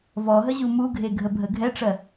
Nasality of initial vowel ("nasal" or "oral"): oral